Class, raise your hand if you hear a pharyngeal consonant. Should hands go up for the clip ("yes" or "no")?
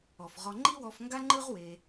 no